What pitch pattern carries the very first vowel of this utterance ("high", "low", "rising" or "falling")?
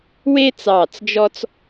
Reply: high